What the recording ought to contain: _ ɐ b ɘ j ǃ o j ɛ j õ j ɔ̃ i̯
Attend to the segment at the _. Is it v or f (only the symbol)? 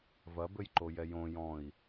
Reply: v